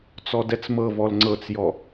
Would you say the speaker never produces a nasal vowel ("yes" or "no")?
yes